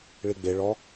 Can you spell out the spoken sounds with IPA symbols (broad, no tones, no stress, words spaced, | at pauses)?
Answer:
ɭiɡ͡be ɭɔ